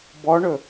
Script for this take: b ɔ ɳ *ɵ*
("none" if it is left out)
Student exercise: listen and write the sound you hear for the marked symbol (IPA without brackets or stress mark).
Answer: ɵ